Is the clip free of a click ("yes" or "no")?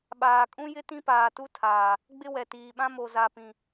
yes